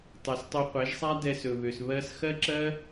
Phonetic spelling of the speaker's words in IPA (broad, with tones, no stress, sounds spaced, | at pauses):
tˤ ɛ˨ s tˤ ø˧ qʷ ɛ˨˦ ʒ sˤ a˦ d ɛ˧ s ɵ˨ β ø˨ s β ɜ˦ s x ɜ˦ ǁ ɜ˦